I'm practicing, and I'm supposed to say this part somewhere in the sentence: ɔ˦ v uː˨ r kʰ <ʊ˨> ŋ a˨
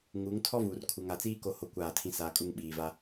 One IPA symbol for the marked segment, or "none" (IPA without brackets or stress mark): u˨